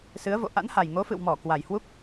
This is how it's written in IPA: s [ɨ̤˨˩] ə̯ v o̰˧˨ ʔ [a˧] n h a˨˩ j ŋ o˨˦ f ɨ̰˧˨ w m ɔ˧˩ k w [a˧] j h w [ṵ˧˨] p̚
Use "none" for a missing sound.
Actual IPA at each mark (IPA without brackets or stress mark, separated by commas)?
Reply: ɨ˨˦, a̰˧˥, a˨˩, u˦˥